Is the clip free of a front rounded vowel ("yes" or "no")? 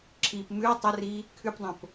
yes